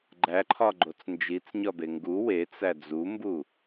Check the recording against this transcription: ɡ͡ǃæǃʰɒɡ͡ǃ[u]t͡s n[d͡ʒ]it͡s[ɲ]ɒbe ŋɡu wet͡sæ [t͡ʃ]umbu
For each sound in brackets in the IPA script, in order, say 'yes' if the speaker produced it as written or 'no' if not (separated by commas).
no, yes, yes, no